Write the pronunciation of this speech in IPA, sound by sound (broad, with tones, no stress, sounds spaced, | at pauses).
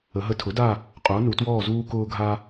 ə˩˧ ɦ ə˧ tʰ ʊ˩˥ d a˥˨ | qʼ ʊː˩˥ n u˩˧ t w ɔː˥˨ z uː˧ k ʊː˧ ɡʱ a˧